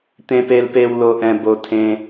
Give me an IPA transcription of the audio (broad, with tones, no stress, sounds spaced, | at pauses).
t̪ ẽ˧ p e˧ l p e˧ w l o˧ ʔ ɛ̃˧ b o˧ tʰ ẽ˧